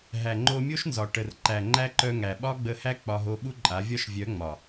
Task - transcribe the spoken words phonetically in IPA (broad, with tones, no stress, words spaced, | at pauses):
ɦæ˨ŋ͡ǃo˧mʲo˦ʃnzɒ˨ ʈə˨r ǃæ˨ŋ͡ǃæ˦ǃœ˧ ŋæ˨ɓɒ˦ɡ͡bə˧hæ˦ k͡pɒ˧ɦo˧ ɓu˦ǃʼa˨˦vʲɒ˦ʃ vʲœ˨˦ ŋ͡mɒ˨